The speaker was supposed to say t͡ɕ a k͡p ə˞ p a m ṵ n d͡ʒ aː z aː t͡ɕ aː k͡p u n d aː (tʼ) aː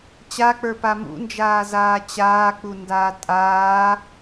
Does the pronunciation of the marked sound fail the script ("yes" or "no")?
no